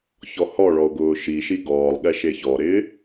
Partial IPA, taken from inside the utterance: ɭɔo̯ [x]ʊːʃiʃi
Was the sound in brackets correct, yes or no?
no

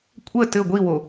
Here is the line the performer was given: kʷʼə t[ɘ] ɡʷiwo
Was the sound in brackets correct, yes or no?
yes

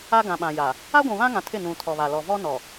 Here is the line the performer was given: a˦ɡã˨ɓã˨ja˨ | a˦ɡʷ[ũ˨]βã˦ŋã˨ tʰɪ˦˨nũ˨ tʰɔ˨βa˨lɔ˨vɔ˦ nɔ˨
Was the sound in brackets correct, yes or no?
yes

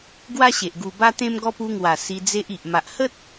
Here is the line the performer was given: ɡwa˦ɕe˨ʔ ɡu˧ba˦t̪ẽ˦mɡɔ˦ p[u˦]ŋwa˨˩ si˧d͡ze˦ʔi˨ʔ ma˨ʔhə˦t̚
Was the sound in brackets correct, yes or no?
no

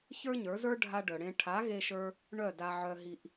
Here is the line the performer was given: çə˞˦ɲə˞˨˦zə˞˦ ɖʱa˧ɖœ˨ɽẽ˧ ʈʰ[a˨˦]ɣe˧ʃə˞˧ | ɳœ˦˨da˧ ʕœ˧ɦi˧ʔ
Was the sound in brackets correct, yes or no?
yes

